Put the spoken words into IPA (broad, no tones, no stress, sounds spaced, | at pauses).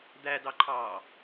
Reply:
d̪ æ d ɑ ǃʰ ɑː